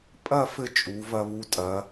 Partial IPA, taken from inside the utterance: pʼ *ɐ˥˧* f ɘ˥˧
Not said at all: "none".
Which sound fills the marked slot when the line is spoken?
ɐ˥˧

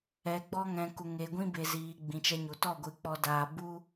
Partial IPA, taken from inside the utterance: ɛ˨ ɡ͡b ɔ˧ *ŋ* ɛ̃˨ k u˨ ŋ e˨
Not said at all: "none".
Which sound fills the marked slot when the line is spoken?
ŋ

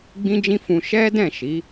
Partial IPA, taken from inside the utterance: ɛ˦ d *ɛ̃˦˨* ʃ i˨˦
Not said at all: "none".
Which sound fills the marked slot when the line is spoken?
ɛ̃˦˨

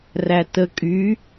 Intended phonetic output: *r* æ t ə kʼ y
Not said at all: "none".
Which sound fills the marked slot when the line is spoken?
r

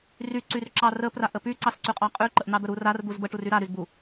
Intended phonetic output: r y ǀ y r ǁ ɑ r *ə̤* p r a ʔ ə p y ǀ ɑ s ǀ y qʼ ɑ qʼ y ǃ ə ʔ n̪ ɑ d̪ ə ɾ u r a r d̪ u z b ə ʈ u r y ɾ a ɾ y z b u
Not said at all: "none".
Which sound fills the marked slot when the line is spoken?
ə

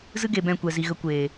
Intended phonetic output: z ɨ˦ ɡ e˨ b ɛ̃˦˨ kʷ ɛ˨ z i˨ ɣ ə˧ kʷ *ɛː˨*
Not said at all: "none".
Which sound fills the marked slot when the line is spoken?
eː˨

